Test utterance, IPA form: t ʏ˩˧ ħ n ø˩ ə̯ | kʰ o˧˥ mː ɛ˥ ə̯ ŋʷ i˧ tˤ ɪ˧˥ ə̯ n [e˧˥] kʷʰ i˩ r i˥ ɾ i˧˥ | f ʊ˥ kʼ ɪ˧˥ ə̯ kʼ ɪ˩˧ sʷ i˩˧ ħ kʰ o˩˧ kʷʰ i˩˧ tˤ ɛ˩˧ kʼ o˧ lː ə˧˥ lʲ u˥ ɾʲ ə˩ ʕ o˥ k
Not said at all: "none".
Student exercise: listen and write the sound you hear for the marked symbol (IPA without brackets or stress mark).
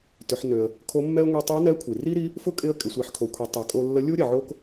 ɛ˧˥